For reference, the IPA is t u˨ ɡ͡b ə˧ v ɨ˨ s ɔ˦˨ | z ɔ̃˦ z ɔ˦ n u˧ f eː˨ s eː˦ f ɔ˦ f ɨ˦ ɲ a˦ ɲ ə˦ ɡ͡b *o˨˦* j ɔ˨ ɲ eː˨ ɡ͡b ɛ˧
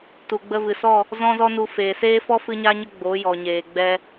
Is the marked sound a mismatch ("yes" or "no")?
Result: no